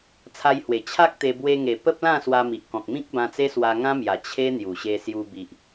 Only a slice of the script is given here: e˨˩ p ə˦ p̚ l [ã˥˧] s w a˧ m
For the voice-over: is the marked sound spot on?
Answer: yes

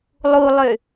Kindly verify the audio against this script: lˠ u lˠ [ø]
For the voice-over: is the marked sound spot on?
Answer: yes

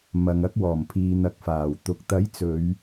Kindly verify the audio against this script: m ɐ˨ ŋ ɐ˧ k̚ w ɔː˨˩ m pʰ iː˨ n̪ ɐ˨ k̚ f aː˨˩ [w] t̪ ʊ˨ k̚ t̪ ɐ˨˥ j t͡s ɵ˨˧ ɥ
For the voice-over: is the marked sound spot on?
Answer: yes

